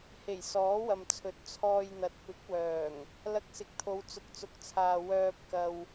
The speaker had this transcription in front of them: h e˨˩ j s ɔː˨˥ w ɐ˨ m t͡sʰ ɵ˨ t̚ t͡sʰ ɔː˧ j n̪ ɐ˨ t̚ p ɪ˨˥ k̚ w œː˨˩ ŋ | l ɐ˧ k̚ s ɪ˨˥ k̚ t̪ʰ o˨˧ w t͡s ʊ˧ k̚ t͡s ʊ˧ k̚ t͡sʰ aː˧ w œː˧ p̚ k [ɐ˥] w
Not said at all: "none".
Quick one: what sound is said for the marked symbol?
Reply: ɐ˧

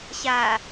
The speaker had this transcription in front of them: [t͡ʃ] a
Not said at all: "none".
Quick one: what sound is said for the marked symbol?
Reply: ɕ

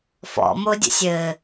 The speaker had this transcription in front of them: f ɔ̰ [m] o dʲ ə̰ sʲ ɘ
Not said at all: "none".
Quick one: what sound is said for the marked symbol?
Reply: m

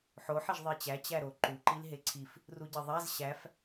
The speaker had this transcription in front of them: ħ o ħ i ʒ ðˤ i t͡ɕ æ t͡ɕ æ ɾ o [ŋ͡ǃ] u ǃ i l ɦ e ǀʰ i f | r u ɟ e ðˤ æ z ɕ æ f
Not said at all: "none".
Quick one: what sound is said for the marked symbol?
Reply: ǃ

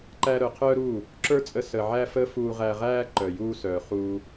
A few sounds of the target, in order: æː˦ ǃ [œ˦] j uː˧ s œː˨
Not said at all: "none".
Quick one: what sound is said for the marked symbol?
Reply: œ˨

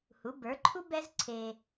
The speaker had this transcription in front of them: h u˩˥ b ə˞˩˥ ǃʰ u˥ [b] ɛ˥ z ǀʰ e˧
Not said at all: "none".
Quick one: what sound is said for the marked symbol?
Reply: b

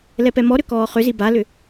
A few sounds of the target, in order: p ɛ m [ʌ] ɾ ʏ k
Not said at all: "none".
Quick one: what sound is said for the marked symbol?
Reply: ɔ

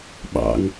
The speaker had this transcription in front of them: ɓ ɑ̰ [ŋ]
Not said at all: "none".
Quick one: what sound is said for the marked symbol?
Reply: ŋ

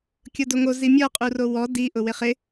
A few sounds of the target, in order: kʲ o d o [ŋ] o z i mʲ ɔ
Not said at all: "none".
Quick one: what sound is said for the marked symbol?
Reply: ŋ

